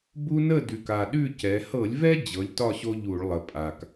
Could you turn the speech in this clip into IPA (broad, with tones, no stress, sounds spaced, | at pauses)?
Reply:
b u˦ n ə˥˨ d ʉ˨˩ k a˨˩ ɗ ʉ˥˨ c ɛ˩˧ h ɤ˧˩˧ lʲ v ɛ˦ d͡ʑ ɤ˩˥ lʲ t ɒ˥˨ ɕ o˦ ʎ u˧˩˧ ɭ lˠ ə˨˩ pʼ a˨˩ k